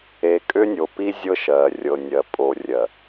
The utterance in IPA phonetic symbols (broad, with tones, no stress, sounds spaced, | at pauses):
e˨ kʼ ʏ˦ nʲ o˨ p i˦ zʲ ɤ˦ ʃ ɜ˨ rʲ ɤ˨ nʲ ɜ˨ pʼ o˨ rʲ ɜ˨